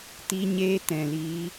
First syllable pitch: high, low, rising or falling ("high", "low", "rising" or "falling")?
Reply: high